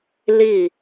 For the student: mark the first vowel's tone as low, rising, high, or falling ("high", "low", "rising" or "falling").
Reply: falling